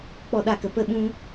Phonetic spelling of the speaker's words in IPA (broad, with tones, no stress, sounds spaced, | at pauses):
k͡p ɔ˦˨ ɗ a˦˨ k ə˧ p ə˦˨ ɓ ũ˦